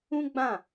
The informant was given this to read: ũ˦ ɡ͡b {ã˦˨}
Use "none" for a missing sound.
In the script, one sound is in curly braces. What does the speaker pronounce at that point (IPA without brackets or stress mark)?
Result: ã˦˨